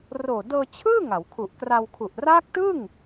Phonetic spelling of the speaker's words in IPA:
r oː˨˩ d ɤː˧ t͡ɕʰ ɯː˥˩ ŋ a˩˦ w kʰ u˨˩ ʔ k r a˧ w kʰ u˨˩ ʔ r aː˦˥ k̚ t ɯ˥˩ ŋ

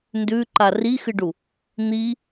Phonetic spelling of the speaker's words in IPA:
n d ʉ ǃ a r i x ɨ ɖ u | n̪ i

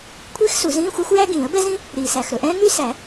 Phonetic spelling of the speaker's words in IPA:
kʷʰ iː˥ x s u˨˩˦ z ĩː˧˥˧ xʷ i˥ xʷ j æ˥ ɡ ĩː˨˩˦ ə̯ b ɛ˥ z ĩ˥ | ɾ iː˨ s æ˨ x ɾ ɵ˨ ʔ ɛ̃ː˥ ŋ y˥ s æ˨˩˦

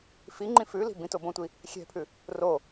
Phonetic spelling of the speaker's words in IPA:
f i ŋ͡ǃ ĩ f ʉ l i̤ b ĩ t o b õ tʷ i | xʲ ɛ̤ pʰ ʉ | r o

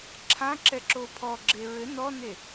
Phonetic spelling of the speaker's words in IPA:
ǁʰ ã ǁ ɛ ǁ o pʰ ɔ ɡ͡ǁ e ɹ ɘ n ɔ n e

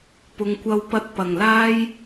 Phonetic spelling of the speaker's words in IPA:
p ʊ˨˧ ŋ kʷ ɐ˧ w p ɐ˧ t̚ p ɐ˨˩ ŋ l aː˥ j

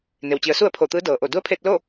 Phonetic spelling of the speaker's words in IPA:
n e˩ w t͡ɕ i˩˧ ə̯ s u˥˨ ə̯ pʰ o˧˩ t̪ ɯː˧˥ d ɤː˩ ʔ o˧˩ d u˧˥ ə̯ pʰ eː˧ t̚ l o˥˨

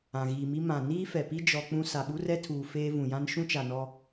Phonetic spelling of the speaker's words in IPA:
ã˨ ɣ iː˨ m i˦ m ã˨ n iː˦ f ɛ˨ p i˦ d͡ʒ ɔ˦ k͡p ũ˦ s a˨ ɓ u˦ r ɛ˦ tʰ uː˨ f eː˦ v ũ˨ j ã˦ n ʃ ũ˦ t͡ʃ a˨ n ɔ˦

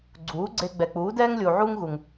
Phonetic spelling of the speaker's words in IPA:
ɡ͡ǀ uː˩˥ ɡ͡ǀ e˧ ɡ͡b ɛ˩ k͡p uː˩˥ d ɛː˥ ŋ lʲ u˩ ʕ uː˥ ŋ ɣ u˩ ŋ

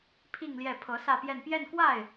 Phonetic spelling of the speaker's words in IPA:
pʰ i˥˧ ŋ l j ɛ˥˩ pʰ ɤ˧˥ s ä˥˧ p j ɛ˥˧ n p j ɛ˥˧ n k w a˥˩ ɪ̯

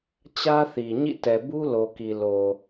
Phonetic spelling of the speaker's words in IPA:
t͡ɕ ä˦ θ i˨ ɲ ḭ˦˨ t ɛ˨ b u˦ l o˨ k i˨ l o˨

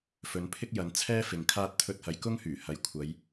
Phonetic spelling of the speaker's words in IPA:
f ɵ˨˧ n pʰ ɪ˥ k̚ j ɐ˨˧ n t͡sʰ ɛː˥ f ɪ˨ ŋ kʰ aː˥ t̚ t̪ʰ ɵ˧ t̚ h ɐ˨ j k ʊ˥ ŋ h yː˨˩ h ɐ˨˥ j kʷʰ ɐ˨˧ j

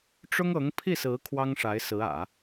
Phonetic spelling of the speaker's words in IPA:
ʈ͡ʂ ʊ˥ ŋ ɤ˧˥ ŋ pʰ i˥˩ s ɹ̩˧˥ kʰ w ɑ˥ ŋ ʂ a˧˥ ɪ̯ s ɹ̩˧˥ ä̰˨˩˦

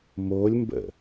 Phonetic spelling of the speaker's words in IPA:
m o lʲ m b ə̰

